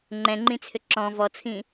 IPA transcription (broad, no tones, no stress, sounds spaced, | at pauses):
ŋ͡ǃ ɛ̃ ŋ͡ǃ ĩ t͡sʰ ʏ ǁ ɔ̃ v ɔ t͡sʰ ĩ